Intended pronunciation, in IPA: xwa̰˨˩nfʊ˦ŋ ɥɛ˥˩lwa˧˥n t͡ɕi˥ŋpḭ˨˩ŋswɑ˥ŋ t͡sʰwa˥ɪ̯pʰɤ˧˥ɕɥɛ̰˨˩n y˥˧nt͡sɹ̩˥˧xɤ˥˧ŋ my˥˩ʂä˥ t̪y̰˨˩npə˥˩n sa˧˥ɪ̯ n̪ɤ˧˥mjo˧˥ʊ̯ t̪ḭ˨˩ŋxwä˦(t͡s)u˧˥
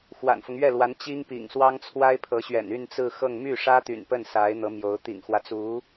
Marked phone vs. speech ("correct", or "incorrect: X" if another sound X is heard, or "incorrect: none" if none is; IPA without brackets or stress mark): correct